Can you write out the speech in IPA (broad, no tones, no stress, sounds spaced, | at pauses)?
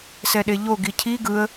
s ɛ ɗ e ʎ o ɡ i cʰ i ɡ ɯ ə̯